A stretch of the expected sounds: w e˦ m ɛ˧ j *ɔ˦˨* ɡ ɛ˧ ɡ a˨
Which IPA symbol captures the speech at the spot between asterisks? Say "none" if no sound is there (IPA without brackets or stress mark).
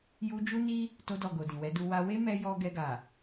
ɔ˧